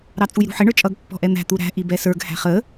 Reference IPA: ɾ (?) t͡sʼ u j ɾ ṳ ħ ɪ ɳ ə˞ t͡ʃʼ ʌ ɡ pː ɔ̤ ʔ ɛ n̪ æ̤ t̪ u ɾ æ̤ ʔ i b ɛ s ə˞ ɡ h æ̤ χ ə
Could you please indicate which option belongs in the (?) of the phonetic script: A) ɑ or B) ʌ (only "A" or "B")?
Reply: A